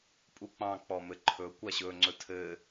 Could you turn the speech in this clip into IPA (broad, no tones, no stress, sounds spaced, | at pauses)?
pʼ u k͡p ɑ̃ k͡p ɔ m ɘ ǃʰ ɵ kʷ a ɕ ɵ ŋ͡ǀ ɵ tʰ ɘ